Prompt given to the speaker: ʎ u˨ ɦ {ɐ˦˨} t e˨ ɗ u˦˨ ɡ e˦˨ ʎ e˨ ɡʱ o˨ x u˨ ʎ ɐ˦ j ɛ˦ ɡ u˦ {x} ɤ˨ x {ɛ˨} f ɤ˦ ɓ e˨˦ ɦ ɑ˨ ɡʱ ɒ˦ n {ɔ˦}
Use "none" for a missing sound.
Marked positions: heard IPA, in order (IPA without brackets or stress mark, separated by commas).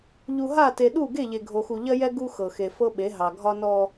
a˦˨, x, e˨, ɔ˦